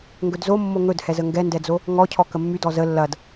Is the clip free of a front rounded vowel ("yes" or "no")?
no